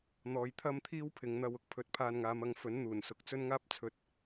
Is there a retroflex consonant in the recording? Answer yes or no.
no